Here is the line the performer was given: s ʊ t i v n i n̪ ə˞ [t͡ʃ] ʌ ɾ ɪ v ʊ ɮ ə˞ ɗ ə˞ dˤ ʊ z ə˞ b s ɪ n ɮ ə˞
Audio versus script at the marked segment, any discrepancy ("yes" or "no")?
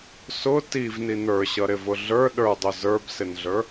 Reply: yes